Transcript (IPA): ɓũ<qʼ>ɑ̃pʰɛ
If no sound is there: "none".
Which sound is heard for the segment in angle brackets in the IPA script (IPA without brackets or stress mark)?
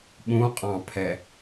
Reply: qʼ